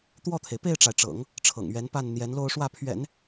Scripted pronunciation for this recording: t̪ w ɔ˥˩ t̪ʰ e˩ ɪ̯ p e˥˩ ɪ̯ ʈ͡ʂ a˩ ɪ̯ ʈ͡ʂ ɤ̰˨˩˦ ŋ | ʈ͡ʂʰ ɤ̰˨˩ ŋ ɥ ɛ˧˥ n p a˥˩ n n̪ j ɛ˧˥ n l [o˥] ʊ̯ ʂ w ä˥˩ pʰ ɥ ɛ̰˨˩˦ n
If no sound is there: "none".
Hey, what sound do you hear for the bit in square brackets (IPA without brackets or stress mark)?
o˥˧